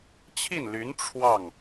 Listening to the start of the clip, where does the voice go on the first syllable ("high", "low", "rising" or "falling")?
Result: falling